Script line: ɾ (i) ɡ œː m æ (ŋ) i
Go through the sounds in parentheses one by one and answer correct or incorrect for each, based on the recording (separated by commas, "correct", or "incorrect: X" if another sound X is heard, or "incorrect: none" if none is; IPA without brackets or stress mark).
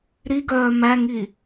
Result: correct, correct